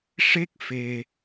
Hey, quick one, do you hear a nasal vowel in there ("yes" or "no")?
no